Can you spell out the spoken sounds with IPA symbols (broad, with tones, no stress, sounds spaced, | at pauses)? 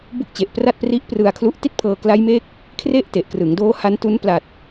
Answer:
b u˦˥ k̚ t͡ɕ e˨˩ ʔ p r a˥˩ t̚ p r i˦˥ ʔ p r ɯ˧ a̯ kʰ l u˦˥ ʔ t i˥˩ t̚ pʰ ɤː˧ k l a˦˥ j m e˦˥ k̚ | kʰ r e˥˩ ʔ t e˨˩ ʔ k r ɯ˩˦ ŋ d oː˦˥ h a˦˥ n t u˦˥ n p l a˨˩ t̚